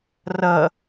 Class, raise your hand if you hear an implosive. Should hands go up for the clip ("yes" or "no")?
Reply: no